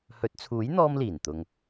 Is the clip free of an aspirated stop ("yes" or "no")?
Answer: no